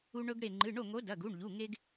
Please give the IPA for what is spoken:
u˧ɳɵ˧ɡɽe˧˩ ŋ͡ǃɨ˩˧˩ɳo˥˩ŋo˨˥ dɐ˩˧˩ɡu˩˧˩ɳʎu˩˧˩ ŋe˧ɡ

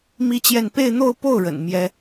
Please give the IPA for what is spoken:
mi˥t͡ɕjɛ˥˧n pe˥˧ɪ̯n̪o˥˧ʊ̯po˥˩ʊ̯ ɻə̰˨˩nmjɛ˥

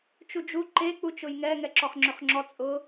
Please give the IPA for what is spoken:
t͡ʃud͡ʒu ǃe k͡put͡ʃʊjŋɛ ŋɛǁɔχŋ͡ǁøχŋ͡ǁɔ t͡sʼʊ

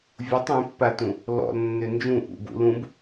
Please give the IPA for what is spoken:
vʲutˤ ẽpːatũ | lɔ̰lnːø nd͡ʒũ ʔṵbṵ lũb

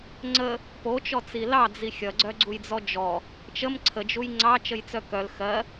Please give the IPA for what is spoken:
ŋ͡ǀə | pot͡ʃɔt͡si lɑd͡zi xʲʌɡ͡ǀœɡ͡ǀujd͡zɔ d͡ʒɔ | t͡ʃəm ǀʰəd͡ʒuj ŋ͡ǀɑt͡ʃəjt͡sœ kœl xɜ

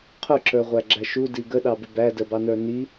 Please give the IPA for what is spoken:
qʰʊǁə˞ʁʷæɡ͡ǁæ ʃudi ɡəɗɑbɪ bædəbɑnə˞ ni

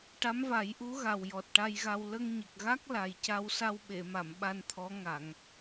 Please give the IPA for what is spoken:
ʈa˧˥mva˨˩˦jʔu˧˥ ɣa˨˩wjɔ˨˩t̚ʈa˧jɣa˧w lə˧ŋɲə˨˩k̚ɣa˦˥k̚ la˨˩jca˧w sa˧wɓe˨˩˨ma˨˩˨m ɓa˧nt̪ʰɔ˧˥ ŋa˨˩˨ŋ

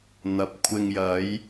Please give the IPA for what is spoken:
n̪ɐ˨p̚ kʷʰɪ˧ŋjɐ˨˥j

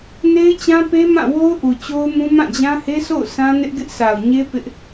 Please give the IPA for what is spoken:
ne˦ɪ̯t͡ɕã˦pe˦mã˦˨ wo˦ʊ̯ʔu˨t͡ɕo˦ʊ̯mũ˦ mã˦˨d͡ʑã˦he˦sʰo̰˦˨ʊ̯ sã˦nɪ˦ʔɡɪ˦ʔ sa˨ʊ̯ɲe˦ pɪ˦ʔ

